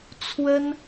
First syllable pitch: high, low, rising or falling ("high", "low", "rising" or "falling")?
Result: high